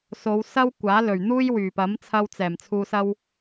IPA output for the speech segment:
s o˨˧ w s ɐ˥ w kʷ aː˨˥ l ɵ˨˩ ɥ n̪ uː˥ j w yː˨˩ p ɐ˨˥ m t͡sʰ ɐ˧ w t͡s ɛː˨˩ m t͡sʰ uː˨ s ɐ˧ w

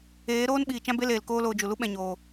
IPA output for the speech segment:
eː˨˦ ɾ oː˦ n ɓ iː˨ t͡ʃ ã˦ b e˦ l eː˨ l k oː˦ l oː˧ d͡ʒ u˨ l u˦ ɓ ɛ̃˨ ɲ oː˨

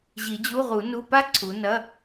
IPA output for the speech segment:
ʑ i˨˩˦ d͡ʑ u˧˥˧ ʁ u˨˩˦ n u˧˥˧ p a˥ ǀʰ u˨˦ n ɐ˧˥˧

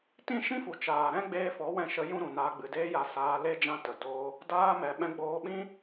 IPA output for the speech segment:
t ĩ˦˨ ʃ ĩ˦ f u˨ t͡ʃ aː˨ ɾ ɛ̃˦ ɡ͡b eː˧ f ɔ˨˦ w ɛ̃˧ ʃ ə˧ j ũ˦ ɾ ũ˨ n aː˧ ɡ͡b ɨ˨ d eː˧ j a˧ s aː˧ l e˦ d͡ʒ ã˧ t ə˨ d oː˧ | d aː˧ m ɛ˨ ɓ ɛ̃˧ ɡ͡b oː˧ ɓ ĩ˦

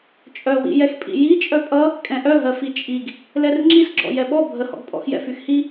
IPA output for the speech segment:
t͡ʃʼ œ w ḭ j ɛ x pʼ ḭ j i t͡ʃʼ œ pʼ ʌ | kʼ ɛ̃ ʔ œ ɦ ɜ f i t͡ʃʼ i ɡ | l ɛ r ŋ͡ǁ i s ɡ͡ǁ ɔ̰ j ɛ ɓ ɔ bʱ ə h ɔ̰ ɡ pʼ ɔ̰ x j ɛ̰ f y x h i

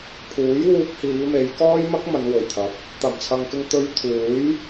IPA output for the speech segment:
pʰ uː˨˥ j w uː˧ k̚ h iː˨˧ m e˨˧ j k ɔː˥ j m ɐ˥ k̚ m ɐ˨˧ n w ɵ˨˩ ɥ t̪ʰ ɐ˨˥ p̚ | t̪ ɐ˨˩ m t͡sʰ ɐ˨ ŋ k ɪ˧ ŋ t̪ ɵ˧ ɥ t̪ʰ uː˨˥ j

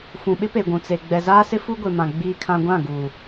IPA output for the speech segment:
f ũ˨ ɓ ɪ˦ p e˨ ɡʷ ũ˨ t͡s e˨ ɡ͡b ɛ˨ z aː˦ s ɪ˦ f u˦ ɡʷ e˨ m ã˨ ɡ͡b iː˦ kʰ ã˦ ɡʷ ã˦˨ ɡ uː˨

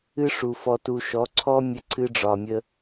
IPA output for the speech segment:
ɨ˦ ʂ u˨ f ɔ˨ t u˨ ʃ ɔ˨˦ ǀʰ ɔ˦ mʲ ə˦ ǀʰ ɨ˦ ɖ͡ʐ ɒ˨ mʲ ə˦

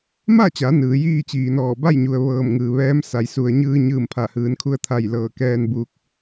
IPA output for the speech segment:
m a˥˨ t͡ɕ a˩˧ n ɯː˩˧ j iː˥˨ t͡ɕ iː˩ n ɔː˧˩ b a˥˨ j ɲ u˩ ə̯ ʋ ɤː˧˩ m ŋ ɯː˩ ʋ ɛː˧˥ m s a˩ j s u˩ ə̯ ɲ ɯː˧ ɲ ɯː˧˩ m pʰ a˧˩ h ɯː˩˧ n kʰ u˧ ə̯ t̪ʰ a˧˩ j l ɤː˧˩ k ɛː˧ n b uː˧ k̚

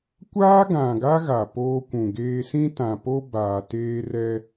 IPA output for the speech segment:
kʷ aː˦ ɡ ã˨ ɡ a˦ ɣ a˨ p oː˦ kʷ ũ˨ ɡ eː˦ s ĩ˦ t ã˨ p o˦ b aː˨ t eː˦ r ɛ˦

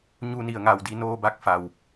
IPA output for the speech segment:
ɲ u˧ n i˩ ə̯ ŋ a˧˩ w d i˧ n oː˧ b a˧ k̚ f a˩ w

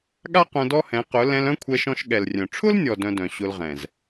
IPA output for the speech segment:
ɠ a˦ q œ̃˧ d ɔ˦ h ɛ̃˨˦ q ʊ˨˦ l ɛ̃˧ l œ̃˧ kʷʰ ɛ˧ ʃ ɔ̃˧ ʃ ɠ ɛ˨ l rʲ œ̃˨ ʈ͡ʂʰ ʊ˦ l nʲ ɔ˨ d œ̃˧ d œ̃˨ ɕ ʊ˧ l ʁ ɛ̃˨ z

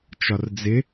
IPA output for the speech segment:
t͡ʃ ɒ r d͡z ɪ

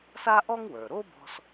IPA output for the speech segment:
s a˥ ʔ ɔ˥ ŋ w ə˞˩ ɾ o˥ b ɔ̤˧ s

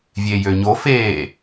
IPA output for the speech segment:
vʲ eː j ø ɲ o f eː

